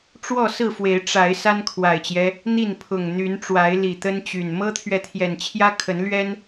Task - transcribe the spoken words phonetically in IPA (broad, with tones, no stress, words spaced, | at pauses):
ʈ͡ʂwɔ˥˨ sɹ̩˥˨fwe˨˦ɪ̯ ʈ͡ʂa˨˦ɪ̯ sa˦nkʰwa˨˩ɪ̯t͡ɕjɛ˦ | n̪i˥˨npʰʊ˨˩ŋ n̪y˨˦nʈ͡ʂwa˨˦ɪ̯ li˨˩t̪ə˦nt͡ɕy˨˩n mɤ˦t̪ʰɥɛ˨t̪ʰjɛ˨˩nt͡ɕʰjä˦ kʰə˨˦nlɥɛ˦n